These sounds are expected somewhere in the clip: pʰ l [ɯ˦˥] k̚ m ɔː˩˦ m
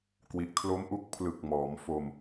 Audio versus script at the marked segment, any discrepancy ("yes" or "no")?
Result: yes